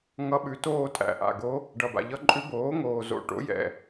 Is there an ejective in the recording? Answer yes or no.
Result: yes